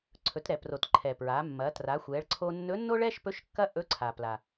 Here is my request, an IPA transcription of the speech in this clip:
ǀʰ ɵ˩˧ t ɾ ɛ˩ p r o˩ t ǃʰ ɛ˩ p ɹ a˩˧ mː ɐ˩˧ t r a˩˧ xʷ ɛ˩˧ ɭ ǀʰ o˧ nː ɵ˧˥ nː o˥ ɭ ɛ˥ ʃ p ɵ˧˥ ʃ kː ɐ˥ ʔ ɵ˧˥ ǀʰ a˩ p l a˩

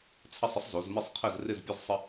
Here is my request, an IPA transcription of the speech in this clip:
t͡sʰ ɐ˥˧ sˤ ə˥ sˤ z o˨˦ z m ɪ˥˧ sˤ qʰ ɘ˥˧ z r ɪ˥˧ z pʲ ɘ˥ z sˤ ə˥

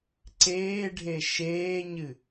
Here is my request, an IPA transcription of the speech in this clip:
ǀ eː ɖʱ e ʃ eː ɲ ɨ

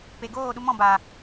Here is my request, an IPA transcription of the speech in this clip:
p e˨ ɡ oː˦˨ ɗ u˧ m ɔ̃˦˨ b aː˨

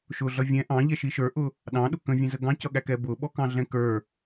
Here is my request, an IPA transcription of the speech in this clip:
ʃ ʊ ɮ ʌ vʲ ɛ̃ ʔ ɑ̃ ʎ ɛ ʃ i ʃ ə˞ ʔ ʊ | ɗ ɑ̃ ɗ ʊ k ə̃ vʲ ɛ̃ z ə ɡ ɑ̃ c ʌ ɠ æ k ɛ b ʊ ɓ ɔ k ɑ̃ ɮ ɛ̃ k ə˞

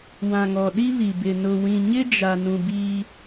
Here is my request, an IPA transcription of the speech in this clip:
w ã˨ ŋ ɔ˨ ɗ i˦ β i˨ b ɪ˨ n ʊ˨ w ĩ˨ ɲ ɪ˦ d͡ʒ a˨ n ũ˨ b iː˦

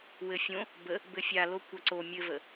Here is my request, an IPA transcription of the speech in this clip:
w ɘ fʲ õ | b ə | b ɘ fʲ a l o kʷ a ǀ o mʲ ɘ v ə

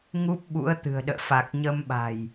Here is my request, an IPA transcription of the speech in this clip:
ŋ u˦˥ p̚ ɓ ṵ˧˥ ə̯ t̪ ɨ̤˨˩ ə̯ ɗ ə̰ː˧˨ f a˨˩ k̚ ɲ ə˧ m ɓ a̤˨˩ j

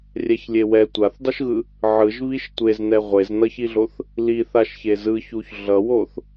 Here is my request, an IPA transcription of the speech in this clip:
rʲ ɛ ç lʲ e w ɛ tʷ a θ dˤ u ʃ ɣ ɯ | ʕ ɯ ʒ β i ʃ tʷ e z n ɛ ʁʷ e z n ʌ ç i ɮ o θ | l i θ a ʃ ç e z ɯ ç u ç ɮ ʌ w o θ

